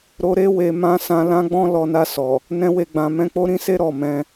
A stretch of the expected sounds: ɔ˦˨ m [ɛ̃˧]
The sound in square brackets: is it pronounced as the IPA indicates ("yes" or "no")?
yes